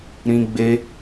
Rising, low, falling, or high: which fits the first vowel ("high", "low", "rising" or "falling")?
high